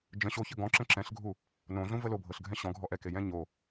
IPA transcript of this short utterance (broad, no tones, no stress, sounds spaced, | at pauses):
d͡ʒ ə̃ ɕ o ç ə ɡ ɔ̃ ǁ ə̃ ǁ ɛ̃ ɬ ɡʱ u | n õ ɮ ũ v ə l o bʱ ɤ ɬ ɡʱ ɛ̃ ɕ ɔ̃ ɡʱ ɔ ʔ ɛ k e j ɛ̃ ɲ o